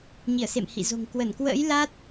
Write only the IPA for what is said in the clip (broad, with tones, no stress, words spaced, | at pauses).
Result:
ɲi˧˩ə̯sḛ˧˨mhḭ˧˨zo̤˨˩ŋ kwə˧˩nkwə̰ː˧˥j la˦˥t̚